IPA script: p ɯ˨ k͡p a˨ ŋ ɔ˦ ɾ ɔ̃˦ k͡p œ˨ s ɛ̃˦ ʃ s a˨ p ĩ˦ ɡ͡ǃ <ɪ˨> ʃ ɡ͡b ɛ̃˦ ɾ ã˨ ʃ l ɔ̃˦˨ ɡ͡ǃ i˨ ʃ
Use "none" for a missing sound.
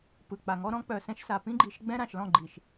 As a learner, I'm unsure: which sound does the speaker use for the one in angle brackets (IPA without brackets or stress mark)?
i˨